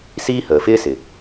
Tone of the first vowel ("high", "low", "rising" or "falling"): high